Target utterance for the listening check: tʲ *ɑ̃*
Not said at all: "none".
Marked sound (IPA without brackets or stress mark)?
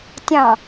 ɑ̃